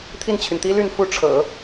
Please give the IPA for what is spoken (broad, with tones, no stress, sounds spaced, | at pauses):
t̪ʰ i˥˩ n t͡ɕʰ y˩ n t̪ i˥ l y˥˧ n f u˥˩ ʈ͡ʂʰ ɤ̰˨˩˦